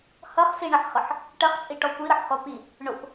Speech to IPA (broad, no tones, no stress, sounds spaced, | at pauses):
h ʌ χ s i ɳ ɐ ħ χ ʌ ħ | ʈ ɐ χ t͡sʼ i ʈ ɔ kʷ i ɾ ʌ ħ χ o p i | ɳ ʊ p